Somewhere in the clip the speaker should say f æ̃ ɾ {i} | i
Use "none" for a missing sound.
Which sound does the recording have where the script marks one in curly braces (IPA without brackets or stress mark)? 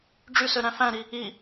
i